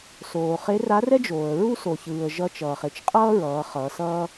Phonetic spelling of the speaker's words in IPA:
s oː˩ χ e˧˥ r a˧˥ r ɛ˥ d͡ʒ oː˩ ə̯ ɹ u˥ s o˩ ç ɯː˩ ə̯ ʒ ʌ˧ t͡ʃ ʌː˩ χ e˧ t͡ʃ qʼ ʌː˥ ɹ ʌː˩˧ χ ʌː˩˧ s ʌː˥

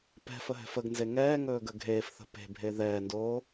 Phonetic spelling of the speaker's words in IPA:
p ɛ̤ f ə ɦ ɛ̤ f ə ɡ n z e ŋ ɛː ŋ ɵː ɡ ə ɡʱ eː f θ ə̤ p e̤ bʱ e ð ɛː n d oː

